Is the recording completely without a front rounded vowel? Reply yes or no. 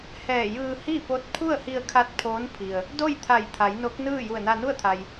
yes